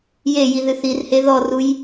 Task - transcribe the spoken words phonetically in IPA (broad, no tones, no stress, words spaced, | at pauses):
jeji ðɨθirhe ðɔruj